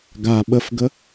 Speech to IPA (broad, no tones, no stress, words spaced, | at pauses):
ɡa ɓəfɡə